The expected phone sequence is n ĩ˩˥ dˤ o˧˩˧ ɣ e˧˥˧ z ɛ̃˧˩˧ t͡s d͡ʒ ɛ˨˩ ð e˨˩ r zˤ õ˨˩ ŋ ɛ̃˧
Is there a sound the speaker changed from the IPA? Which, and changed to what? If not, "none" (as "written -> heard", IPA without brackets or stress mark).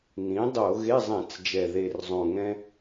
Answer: z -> zˤ